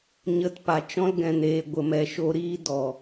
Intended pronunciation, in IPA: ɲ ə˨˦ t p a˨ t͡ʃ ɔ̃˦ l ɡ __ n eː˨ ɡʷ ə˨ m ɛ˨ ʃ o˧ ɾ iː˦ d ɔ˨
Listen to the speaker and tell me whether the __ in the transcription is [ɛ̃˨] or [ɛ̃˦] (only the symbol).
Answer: ɛ̃˨